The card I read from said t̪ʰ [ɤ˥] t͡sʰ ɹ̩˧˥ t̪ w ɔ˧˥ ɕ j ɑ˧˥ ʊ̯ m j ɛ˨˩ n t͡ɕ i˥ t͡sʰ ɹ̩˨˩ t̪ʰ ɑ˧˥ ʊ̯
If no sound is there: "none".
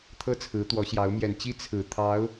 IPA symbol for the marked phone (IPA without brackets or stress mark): ɤ˥